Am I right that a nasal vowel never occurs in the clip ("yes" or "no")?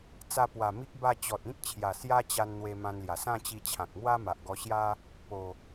no